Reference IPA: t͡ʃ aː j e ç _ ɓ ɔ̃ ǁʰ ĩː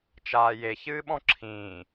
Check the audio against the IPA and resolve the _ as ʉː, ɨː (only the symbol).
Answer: ɨː